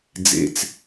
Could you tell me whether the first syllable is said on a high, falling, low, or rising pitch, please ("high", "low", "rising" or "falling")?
low